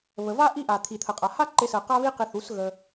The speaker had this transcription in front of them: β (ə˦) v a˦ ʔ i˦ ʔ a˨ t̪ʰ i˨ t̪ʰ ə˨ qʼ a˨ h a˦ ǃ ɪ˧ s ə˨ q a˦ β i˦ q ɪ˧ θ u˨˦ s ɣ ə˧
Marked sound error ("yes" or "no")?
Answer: yes